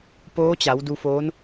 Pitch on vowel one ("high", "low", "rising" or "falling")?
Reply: rising